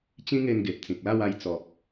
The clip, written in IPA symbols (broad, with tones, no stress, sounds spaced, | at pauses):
t͡ɕ ĩ˦ ŋ e˧ n ɡ e˨ p̚ t͡s ĩ˨ k̚ l a˥˧ w a˧ j t͡s ɔ˨ p̚